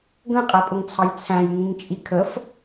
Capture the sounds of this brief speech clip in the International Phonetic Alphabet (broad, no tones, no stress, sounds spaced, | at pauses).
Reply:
ɡ ə̃ qʼ æ pʼ ʊ ŋ t͡sʰ ɑ j t͡sʰ æ̃ j ŋ ĩ ŋ t͡ʃʼ i kʰ ə f